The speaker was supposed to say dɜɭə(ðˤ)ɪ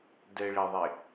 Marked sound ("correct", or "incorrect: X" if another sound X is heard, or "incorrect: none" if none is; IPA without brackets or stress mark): correct